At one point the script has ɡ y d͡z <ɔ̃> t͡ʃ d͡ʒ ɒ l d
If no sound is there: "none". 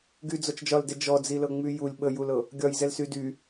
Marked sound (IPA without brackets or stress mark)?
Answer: ɔ